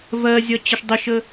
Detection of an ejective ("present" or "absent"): absent